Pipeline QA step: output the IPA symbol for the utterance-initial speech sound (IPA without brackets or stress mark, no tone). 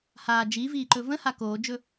h